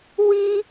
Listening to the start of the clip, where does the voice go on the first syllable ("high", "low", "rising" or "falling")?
high